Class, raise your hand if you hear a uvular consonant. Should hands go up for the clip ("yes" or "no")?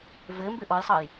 no